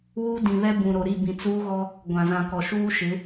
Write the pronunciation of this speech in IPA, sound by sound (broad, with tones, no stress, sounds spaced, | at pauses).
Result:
w uː˦ d ĩ˨ β ɛ˦ b ũ˨ ɾ o˨ ɾ i˦˨ b ĩ˨ t͡s uː˦ ɣ ɔ˦ | ɡʷ ã˨ z ã˨ k ɔ˨ ʃ uː˦ ʃ ɪ˨˦